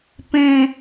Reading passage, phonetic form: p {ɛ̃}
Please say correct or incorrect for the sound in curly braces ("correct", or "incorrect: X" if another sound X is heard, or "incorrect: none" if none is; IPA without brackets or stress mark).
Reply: incorrect: ẽ